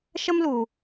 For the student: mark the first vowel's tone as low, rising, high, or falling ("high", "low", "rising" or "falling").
high